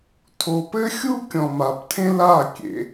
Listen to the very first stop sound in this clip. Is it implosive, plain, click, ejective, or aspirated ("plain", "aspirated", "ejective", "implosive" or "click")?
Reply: aspirated